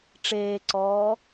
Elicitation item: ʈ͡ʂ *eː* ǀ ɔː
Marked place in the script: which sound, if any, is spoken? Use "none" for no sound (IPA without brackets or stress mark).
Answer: eː